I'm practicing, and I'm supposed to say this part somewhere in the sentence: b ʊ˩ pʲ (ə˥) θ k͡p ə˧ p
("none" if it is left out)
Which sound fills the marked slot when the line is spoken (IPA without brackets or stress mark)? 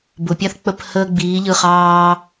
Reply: a˥